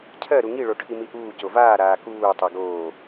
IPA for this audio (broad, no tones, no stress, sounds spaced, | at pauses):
cʰ ɜ ɾ u ŋ i ɭ o ʈʰ i m i ʔ uː c o v aː ɾ aː k uː tˤ ɜ ɡ oː